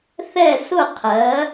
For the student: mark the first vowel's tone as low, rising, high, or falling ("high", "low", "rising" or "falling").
falling